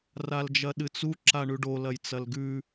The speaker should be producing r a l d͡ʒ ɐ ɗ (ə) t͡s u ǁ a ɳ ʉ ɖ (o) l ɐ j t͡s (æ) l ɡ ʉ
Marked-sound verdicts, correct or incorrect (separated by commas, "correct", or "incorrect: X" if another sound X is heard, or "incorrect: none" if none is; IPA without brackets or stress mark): incorrect: ɨ, correct, incorrect: ɐ